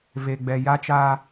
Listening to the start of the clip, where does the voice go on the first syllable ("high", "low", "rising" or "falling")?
low